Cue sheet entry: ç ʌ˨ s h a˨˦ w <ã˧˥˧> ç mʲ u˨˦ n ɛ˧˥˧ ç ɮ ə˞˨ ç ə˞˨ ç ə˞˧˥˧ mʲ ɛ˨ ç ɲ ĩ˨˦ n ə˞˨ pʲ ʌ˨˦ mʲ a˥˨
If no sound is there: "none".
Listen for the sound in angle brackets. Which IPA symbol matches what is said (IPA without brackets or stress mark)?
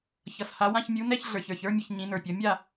ã˧˥˧